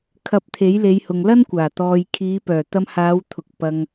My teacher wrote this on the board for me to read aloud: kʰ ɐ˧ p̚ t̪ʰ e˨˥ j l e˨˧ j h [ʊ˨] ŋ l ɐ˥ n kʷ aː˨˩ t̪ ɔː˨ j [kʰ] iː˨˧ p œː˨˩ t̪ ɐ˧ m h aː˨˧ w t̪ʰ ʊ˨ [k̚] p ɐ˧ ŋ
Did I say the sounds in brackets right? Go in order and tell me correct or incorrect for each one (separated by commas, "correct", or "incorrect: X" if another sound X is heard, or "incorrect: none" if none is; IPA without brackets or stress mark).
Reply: correct, correct, correct